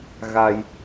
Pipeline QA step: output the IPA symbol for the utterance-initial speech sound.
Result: ɣ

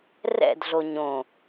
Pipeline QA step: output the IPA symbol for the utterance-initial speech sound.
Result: r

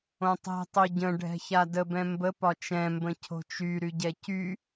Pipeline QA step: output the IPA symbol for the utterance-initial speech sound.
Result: õ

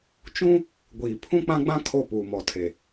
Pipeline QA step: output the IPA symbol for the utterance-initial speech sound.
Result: t͡ʃ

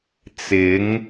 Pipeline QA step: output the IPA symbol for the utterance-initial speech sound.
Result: t͡s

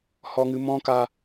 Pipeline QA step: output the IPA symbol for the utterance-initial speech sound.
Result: h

